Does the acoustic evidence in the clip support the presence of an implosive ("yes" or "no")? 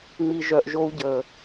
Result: no